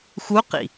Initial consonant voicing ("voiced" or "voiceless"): voiceless